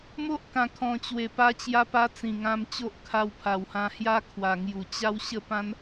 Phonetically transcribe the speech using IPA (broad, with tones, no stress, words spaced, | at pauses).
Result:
mo˦ʔkã˨˩ kʰɔ̃˨˩t͡ɕwe˨˩ pa˧t͡ɕja˧pa˧ t͡sĩ˨˩ŋã˧mt͡ɕo˦ʔ kʰa˧wpʰa˨˩whã˧hja˦ kʰwa˨˩ŋju˨˩ t͡ɕa˧w ɕə˥˧pã˦n